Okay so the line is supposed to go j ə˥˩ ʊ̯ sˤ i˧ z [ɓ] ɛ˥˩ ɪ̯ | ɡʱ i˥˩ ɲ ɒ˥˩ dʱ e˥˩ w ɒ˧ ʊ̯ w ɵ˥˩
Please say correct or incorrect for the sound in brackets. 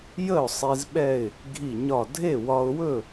correct